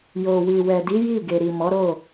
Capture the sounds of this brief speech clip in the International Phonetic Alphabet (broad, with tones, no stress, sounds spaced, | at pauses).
j o˨ w i˨ w ɛ˨ d i˨˦ j i˦˨ ɡ e˨ ɾ i˨ m ɔ˨˦ ɾ o˦˨